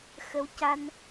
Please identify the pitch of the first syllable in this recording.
rising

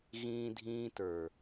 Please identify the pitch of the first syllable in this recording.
high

